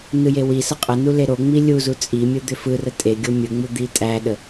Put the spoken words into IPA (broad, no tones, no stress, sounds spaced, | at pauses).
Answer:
n ɯ j e w i s ə qʼ ə n u l e ɾ o ŋ͡m i lʲ u z u t͡sʼ i mʲ ɯ d̪ ʏ f ɯ r ə tʼ e ɡʲ o mʲ ɯ ŋ͡m u d̪ i tʼ æ ɗ ə